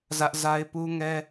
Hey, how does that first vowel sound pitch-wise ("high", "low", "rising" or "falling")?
high